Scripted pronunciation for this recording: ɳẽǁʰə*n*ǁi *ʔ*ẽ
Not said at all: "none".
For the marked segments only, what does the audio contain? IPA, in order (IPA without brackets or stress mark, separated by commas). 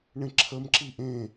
m, ʔ